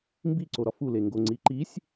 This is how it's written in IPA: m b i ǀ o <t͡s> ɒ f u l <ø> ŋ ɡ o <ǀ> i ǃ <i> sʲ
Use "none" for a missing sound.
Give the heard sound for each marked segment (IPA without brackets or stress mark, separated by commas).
ɾ, e, ŋ͡ǀ, i